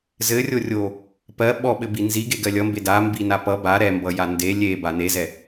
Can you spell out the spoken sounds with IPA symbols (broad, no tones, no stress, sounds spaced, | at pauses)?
z ɘ rʲ o rʲ o | p ɜ ɓ ɔ ɓ ɘ b i n z i ɡ e ɡ ɜ lʲ ʌ m b e d a m b i n a p ʌ b a ɾ ɛ m b ʌ j a n d e lʲ e b a n e z ɛ